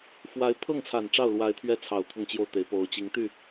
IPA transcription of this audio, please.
f w a˧˥ ɪ̯ pʰ ɤ˥˩ ŋ t͡sʰ a˨˩ n ʈ͡ʂ ɑ˥˩ ʊ̯ l w a˧˥ ɪ̯ t̪ʰ ɥ ɛ˥˩ t͡sʰ ɑ˨˩ ʊ̯ t̪ʰ ʊ˥˧ ŋ t͡ɕ j o˥˩ ʊ̯ t̪ e˧˥ ɪ̯ p o˧˥ ʊ̯ t͡ɕ i˧˥ ŋ t̪ y˥˩

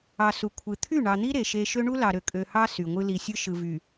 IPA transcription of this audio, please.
ɑ˨ s u˨ kʷʰ ɯ˨ t̪ʰ y˦˨ ɳ ɑ˨ n̪ i˦ ɾ e˨ ʃ e˦ ʃ ø˦ ɳ u˦ l ɑ˨ ɾ ø˨ kʼ ø˨ h ɑ˦ s y˨ ŋʷ ɯ˦ l i˨ sʲ ɯ˦ ʃ ɯ˨ v y˨

